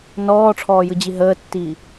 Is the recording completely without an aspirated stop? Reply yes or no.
no